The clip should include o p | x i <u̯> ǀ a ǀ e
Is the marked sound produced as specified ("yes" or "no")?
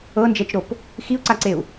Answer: yes